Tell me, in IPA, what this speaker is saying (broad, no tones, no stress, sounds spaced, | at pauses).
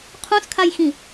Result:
qʰ ũ s kʰ a j x ĩ